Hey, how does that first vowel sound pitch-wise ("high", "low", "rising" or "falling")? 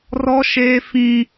high